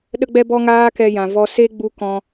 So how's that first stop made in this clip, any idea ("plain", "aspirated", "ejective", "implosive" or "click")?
implosive